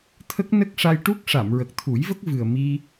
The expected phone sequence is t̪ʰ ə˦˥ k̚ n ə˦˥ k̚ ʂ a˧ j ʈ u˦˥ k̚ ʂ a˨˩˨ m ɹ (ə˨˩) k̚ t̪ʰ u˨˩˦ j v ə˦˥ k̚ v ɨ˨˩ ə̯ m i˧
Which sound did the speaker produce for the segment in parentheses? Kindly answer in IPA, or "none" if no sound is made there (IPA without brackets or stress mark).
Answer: ə˨˩